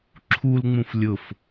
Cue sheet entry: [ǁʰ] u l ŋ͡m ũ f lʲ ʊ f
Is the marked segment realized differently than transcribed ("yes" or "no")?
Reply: no